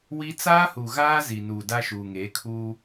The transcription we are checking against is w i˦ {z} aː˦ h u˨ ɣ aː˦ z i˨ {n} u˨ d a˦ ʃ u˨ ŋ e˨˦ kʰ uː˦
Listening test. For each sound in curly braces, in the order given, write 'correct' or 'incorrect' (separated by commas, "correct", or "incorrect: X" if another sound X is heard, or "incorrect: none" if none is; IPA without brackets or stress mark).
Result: incorrect: t͡s, correct